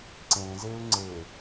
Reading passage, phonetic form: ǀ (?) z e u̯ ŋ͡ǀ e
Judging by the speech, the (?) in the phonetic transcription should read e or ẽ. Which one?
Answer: ẽ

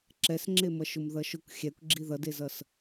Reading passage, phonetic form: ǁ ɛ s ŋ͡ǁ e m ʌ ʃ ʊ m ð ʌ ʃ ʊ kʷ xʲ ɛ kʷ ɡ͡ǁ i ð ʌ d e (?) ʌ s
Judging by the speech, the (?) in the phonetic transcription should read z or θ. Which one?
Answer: z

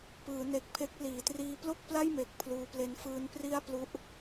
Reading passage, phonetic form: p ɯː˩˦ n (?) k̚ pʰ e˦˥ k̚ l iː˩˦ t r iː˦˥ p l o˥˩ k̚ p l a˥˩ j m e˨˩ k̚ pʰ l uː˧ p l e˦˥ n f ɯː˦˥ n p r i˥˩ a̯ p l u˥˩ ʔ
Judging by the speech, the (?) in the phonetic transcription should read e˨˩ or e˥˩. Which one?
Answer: e˨˩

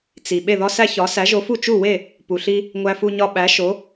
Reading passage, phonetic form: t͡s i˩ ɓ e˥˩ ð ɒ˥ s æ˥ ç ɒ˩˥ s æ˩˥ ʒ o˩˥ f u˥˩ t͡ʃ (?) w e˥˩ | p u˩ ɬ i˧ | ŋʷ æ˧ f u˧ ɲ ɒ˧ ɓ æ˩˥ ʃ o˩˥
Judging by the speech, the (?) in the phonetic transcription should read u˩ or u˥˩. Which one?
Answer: u˥˩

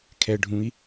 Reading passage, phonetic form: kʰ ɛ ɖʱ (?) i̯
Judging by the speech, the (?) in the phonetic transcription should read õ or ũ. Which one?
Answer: ũ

